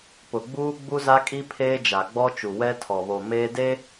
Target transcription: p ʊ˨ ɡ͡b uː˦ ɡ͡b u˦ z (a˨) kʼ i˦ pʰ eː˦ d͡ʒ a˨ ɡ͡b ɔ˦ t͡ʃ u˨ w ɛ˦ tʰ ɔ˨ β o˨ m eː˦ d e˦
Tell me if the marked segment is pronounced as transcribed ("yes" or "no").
no